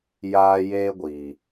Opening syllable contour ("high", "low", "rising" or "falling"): high